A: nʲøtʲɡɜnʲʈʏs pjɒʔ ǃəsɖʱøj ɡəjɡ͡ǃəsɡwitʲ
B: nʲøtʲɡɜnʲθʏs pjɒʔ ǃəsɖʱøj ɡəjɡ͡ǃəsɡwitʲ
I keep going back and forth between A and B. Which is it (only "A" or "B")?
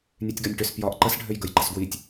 A